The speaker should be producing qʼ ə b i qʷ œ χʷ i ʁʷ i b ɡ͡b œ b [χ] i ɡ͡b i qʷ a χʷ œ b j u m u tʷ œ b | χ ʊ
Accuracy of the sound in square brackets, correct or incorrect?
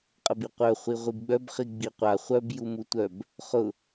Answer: correct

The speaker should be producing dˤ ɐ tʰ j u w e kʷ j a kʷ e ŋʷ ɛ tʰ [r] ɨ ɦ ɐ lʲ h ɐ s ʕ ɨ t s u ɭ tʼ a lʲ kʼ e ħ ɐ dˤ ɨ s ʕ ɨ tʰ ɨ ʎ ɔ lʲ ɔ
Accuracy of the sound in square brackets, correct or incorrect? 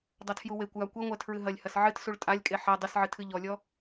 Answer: incorrect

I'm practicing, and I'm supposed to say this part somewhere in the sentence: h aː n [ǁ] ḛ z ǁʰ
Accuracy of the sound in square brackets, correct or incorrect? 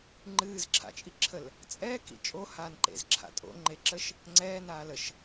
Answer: incorrect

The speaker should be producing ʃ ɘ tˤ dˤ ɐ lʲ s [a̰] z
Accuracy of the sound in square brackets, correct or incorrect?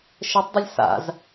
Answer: correct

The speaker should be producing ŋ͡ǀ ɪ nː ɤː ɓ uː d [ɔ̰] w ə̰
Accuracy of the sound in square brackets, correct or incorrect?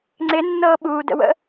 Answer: incorrect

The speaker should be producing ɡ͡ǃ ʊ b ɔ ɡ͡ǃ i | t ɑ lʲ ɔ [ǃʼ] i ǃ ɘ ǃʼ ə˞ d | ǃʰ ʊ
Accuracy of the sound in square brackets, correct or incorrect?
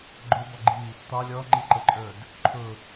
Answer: incorrect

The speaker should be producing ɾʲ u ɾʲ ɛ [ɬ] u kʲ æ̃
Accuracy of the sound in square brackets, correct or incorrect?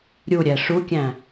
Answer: incorrect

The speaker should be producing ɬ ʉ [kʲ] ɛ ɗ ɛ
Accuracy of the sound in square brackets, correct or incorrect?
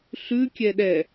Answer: correct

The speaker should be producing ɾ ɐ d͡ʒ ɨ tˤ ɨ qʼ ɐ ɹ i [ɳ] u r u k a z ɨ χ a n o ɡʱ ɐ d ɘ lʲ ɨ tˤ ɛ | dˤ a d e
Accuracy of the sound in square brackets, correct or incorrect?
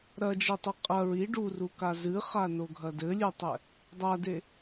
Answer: incorrect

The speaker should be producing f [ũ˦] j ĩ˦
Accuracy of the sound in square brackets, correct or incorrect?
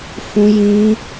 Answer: correct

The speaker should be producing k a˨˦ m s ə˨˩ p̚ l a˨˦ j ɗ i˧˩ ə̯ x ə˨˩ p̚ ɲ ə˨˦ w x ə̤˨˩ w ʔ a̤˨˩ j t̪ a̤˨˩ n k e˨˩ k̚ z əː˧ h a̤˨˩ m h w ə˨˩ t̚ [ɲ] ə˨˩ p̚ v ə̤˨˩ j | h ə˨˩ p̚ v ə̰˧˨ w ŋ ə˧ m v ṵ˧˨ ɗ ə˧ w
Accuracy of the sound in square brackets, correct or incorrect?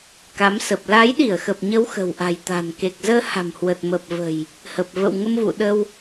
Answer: incorrect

